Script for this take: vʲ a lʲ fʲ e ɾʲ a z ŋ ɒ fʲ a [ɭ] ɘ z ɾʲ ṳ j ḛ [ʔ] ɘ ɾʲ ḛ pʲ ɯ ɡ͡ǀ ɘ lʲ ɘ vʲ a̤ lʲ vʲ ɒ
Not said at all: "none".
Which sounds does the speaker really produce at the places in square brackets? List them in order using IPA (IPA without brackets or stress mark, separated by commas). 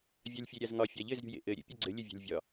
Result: ʎ, ʔ